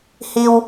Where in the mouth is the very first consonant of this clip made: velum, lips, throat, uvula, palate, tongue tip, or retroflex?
throat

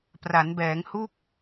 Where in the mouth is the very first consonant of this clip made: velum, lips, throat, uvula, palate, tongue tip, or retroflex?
lips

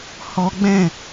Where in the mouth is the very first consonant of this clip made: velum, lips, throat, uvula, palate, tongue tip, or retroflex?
throat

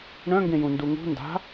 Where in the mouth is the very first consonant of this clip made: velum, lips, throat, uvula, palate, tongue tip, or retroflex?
retroflex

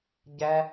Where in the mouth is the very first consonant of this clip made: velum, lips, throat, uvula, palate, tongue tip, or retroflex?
palate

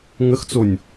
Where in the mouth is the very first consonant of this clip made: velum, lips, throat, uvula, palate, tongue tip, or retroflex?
velum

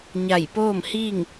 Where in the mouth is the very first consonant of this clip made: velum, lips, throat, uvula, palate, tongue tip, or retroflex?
palate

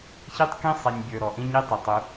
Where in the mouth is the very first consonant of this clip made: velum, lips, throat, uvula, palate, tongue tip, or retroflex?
palate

